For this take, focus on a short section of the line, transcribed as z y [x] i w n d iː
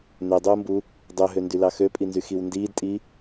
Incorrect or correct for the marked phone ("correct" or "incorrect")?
correct